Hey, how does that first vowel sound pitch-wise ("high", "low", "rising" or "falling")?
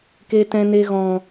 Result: low